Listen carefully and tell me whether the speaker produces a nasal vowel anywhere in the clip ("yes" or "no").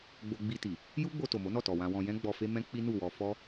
yes